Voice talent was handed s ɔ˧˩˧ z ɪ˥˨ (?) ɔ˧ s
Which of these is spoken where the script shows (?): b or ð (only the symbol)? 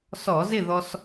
ð